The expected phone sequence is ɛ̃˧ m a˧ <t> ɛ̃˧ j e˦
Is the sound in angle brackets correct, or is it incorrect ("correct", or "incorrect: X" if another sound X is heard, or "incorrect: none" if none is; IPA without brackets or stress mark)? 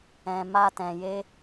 correct